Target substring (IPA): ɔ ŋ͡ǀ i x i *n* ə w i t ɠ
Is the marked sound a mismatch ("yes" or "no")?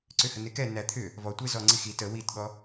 yes